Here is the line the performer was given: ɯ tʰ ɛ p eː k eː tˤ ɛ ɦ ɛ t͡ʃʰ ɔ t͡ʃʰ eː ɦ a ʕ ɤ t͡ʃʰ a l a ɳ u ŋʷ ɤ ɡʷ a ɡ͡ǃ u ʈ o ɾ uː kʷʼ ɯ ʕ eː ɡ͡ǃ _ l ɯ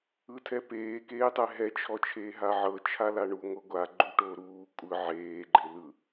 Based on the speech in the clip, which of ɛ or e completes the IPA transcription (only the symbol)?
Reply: e